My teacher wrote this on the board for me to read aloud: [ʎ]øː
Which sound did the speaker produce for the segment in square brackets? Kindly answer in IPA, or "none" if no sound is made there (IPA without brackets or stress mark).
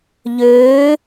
ʎ